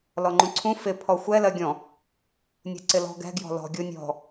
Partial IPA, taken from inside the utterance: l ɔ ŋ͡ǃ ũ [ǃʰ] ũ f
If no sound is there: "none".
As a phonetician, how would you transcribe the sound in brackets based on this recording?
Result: ǀʰ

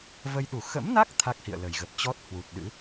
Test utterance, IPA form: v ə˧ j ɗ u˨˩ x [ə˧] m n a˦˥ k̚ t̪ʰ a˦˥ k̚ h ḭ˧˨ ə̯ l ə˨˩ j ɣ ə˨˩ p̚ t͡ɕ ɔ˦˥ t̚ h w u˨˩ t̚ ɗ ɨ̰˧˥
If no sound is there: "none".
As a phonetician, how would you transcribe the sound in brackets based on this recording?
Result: ə̰˧˥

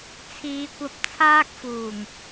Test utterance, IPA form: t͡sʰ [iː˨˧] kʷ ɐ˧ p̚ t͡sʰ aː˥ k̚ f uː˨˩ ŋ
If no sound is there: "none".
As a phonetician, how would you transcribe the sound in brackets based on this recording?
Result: iː˨˧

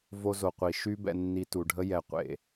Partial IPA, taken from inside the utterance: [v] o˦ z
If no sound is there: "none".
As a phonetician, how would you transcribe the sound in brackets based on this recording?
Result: v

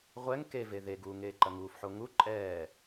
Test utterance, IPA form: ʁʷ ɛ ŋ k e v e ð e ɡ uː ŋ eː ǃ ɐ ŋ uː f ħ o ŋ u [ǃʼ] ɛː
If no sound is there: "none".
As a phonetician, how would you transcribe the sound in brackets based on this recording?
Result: ǃʼ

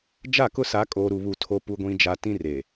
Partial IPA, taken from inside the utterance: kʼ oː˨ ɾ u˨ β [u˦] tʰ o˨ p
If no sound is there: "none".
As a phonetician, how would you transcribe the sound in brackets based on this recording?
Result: u˨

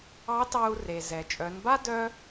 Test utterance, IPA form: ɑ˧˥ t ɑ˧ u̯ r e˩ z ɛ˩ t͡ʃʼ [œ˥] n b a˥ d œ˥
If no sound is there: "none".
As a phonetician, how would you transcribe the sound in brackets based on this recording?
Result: œ˩˧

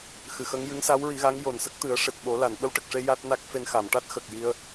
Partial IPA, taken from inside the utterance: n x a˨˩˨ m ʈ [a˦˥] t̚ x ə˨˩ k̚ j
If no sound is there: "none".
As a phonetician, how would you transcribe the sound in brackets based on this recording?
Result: a˦˥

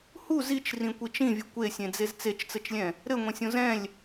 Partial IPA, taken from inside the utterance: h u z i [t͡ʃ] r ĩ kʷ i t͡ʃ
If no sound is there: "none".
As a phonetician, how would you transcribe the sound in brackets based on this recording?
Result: t͡ʃ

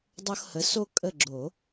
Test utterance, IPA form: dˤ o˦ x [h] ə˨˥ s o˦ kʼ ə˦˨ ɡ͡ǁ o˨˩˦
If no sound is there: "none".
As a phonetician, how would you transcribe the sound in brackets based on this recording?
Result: h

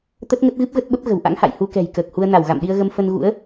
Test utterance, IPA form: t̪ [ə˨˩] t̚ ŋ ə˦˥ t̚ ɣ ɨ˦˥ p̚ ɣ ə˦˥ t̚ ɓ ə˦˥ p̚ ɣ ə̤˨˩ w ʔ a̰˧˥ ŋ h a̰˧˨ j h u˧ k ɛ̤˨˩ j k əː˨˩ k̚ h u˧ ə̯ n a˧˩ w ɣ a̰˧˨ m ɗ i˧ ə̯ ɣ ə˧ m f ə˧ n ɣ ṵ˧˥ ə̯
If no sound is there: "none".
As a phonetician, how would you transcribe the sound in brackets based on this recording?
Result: ə˦˥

